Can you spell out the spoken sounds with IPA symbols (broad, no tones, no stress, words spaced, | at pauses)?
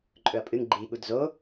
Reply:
ǃʼɵɐ̯pʼɨŋ ɡ͡ǃi ɠudzo